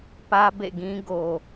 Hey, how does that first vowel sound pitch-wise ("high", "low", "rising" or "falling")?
high